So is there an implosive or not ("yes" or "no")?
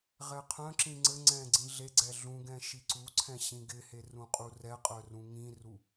no